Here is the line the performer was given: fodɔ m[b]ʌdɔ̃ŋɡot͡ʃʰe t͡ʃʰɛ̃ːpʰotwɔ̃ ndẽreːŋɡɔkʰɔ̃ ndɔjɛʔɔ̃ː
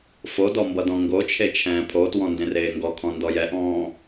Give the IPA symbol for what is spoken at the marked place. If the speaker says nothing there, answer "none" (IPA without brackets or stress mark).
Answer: b